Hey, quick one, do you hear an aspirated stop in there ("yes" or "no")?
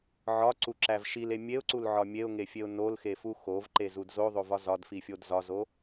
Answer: no